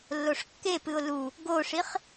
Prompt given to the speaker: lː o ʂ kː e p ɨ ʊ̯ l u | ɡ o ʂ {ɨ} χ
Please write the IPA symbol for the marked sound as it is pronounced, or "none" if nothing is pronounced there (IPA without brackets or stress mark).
i